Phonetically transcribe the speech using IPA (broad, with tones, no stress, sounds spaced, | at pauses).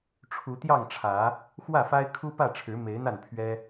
ʈ͡ʂʰ u˨˦ t̪ j ɑ˥˨ ŋ ʈ͡ʂʰ ä˨˦ | x w ä˥˨ f a˦ ɪ̯ kʰ u˦ p ä˥˨ ʈ͡ʂʰ ɻ̩˨˦ m e˨˦ ɪ̯ n̪ a˥˨ n pʰ ɥ ɛ˦